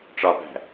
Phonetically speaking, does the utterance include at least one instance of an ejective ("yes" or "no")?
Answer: no